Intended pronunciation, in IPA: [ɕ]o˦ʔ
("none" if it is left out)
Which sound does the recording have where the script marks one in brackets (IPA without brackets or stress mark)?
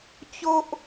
t͡ɕ